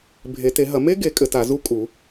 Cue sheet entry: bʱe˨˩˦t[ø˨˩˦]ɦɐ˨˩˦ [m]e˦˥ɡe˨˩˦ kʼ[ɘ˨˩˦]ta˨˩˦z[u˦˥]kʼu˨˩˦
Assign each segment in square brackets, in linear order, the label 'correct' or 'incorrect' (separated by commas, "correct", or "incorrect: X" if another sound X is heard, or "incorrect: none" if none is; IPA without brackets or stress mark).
incorrect: e˨˩˦, correct, correct, correct